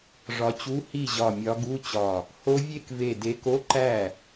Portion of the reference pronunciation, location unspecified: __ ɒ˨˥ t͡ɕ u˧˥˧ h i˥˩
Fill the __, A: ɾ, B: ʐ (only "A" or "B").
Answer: B